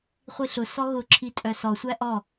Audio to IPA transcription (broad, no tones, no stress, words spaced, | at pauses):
χʷiɬʊsɔ ɣʊǁʰi tʼœsɔsʷæ ʔɔ